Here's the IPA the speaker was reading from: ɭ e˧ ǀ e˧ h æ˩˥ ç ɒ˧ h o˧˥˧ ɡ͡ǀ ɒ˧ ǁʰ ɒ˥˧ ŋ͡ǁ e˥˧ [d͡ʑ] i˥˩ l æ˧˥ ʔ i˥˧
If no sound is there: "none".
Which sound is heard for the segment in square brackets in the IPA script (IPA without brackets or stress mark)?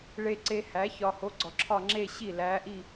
ɕ